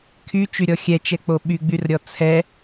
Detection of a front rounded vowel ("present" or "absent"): present